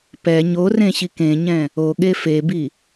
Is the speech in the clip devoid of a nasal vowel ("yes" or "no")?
no